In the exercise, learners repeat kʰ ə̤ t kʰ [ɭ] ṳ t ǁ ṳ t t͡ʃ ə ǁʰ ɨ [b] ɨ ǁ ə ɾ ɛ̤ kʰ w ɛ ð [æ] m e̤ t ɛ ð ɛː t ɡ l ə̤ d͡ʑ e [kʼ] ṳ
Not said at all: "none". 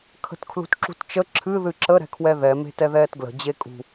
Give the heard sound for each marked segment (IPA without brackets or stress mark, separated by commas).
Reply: l, ð, ɛ, kʼ